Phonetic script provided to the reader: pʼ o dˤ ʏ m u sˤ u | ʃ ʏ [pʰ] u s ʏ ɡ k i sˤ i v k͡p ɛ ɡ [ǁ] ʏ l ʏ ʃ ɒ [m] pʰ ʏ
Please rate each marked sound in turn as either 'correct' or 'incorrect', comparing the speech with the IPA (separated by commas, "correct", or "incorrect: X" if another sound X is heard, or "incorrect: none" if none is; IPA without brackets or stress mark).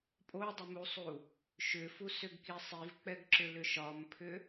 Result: incorrect: f, correct, correct